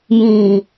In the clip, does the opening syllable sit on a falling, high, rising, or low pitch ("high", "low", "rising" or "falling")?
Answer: low